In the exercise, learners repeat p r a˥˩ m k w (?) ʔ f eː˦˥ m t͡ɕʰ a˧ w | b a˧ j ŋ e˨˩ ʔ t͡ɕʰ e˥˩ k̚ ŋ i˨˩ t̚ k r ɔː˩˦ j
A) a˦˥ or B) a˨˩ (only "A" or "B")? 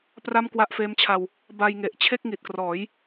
A